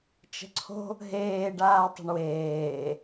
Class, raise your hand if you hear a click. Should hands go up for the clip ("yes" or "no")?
yes